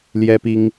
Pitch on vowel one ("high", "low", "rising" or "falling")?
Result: high